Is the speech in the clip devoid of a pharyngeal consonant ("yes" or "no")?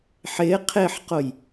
no